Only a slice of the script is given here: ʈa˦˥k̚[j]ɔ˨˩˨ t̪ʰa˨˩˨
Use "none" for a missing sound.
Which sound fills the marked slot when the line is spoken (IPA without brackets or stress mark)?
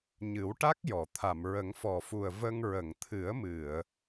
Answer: j